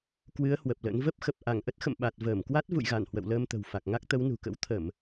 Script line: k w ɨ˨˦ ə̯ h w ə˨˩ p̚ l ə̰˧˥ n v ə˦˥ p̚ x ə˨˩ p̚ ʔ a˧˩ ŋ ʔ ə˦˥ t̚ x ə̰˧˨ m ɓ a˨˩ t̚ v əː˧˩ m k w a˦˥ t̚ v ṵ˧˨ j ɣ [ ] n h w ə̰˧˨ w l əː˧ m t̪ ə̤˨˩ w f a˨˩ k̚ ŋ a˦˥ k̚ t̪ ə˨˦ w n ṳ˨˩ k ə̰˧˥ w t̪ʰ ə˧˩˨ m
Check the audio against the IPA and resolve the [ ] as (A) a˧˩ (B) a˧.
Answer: A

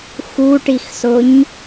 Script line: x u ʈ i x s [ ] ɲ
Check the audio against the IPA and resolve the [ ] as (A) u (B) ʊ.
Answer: B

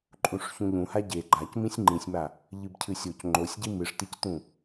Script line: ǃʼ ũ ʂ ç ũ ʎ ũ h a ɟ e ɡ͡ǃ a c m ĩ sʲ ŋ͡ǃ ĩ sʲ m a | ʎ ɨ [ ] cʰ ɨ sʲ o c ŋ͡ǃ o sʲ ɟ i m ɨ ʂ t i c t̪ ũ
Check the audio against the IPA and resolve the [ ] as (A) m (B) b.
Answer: B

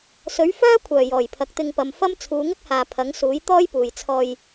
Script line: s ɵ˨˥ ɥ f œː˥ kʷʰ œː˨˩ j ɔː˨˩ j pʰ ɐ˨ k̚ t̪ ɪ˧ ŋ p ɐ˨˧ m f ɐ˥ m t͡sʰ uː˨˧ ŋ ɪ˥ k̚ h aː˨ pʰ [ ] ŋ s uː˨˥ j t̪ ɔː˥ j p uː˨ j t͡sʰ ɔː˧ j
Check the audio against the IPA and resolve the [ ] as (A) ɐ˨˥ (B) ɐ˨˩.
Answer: A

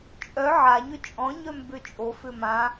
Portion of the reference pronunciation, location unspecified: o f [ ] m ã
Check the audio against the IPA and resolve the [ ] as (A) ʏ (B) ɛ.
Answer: A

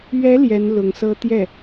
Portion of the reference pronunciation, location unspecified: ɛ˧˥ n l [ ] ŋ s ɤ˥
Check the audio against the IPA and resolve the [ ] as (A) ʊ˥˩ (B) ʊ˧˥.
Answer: B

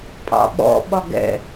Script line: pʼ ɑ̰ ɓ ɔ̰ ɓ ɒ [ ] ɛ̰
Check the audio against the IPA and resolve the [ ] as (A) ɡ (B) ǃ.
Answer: A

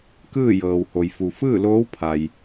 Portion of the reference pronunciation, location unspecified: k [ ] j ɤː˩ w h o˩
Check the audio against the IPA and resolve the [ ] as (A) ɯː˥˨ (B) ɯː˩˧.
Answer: A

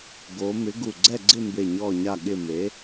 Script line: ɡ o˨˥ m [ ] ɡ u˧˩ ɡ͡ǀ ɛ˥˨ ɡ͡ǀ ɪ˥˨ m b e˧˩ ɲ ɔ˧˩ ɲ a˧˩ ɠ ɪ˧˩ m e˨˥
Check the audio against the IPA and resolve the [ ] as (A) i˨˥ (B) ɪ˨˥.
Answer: B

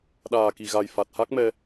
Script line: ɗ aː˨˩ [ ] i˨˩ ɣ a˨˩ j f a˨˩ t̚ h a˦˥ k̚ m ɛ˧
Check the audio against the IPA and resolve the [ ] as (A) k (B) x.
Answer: A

